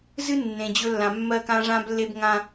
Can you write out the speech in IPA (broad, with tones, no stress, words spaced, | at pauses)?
zɨ˦ nːẽ˨d͡ʑɵ˦ lːã˨ mːɜː˦kãː˦ ʐãː˦blːe˦b ŋã˦